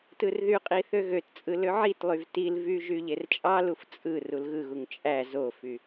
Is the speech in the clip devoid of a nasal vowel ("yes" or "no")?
yes